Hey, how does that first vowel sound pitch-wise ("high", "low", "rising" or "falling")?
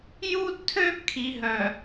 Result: high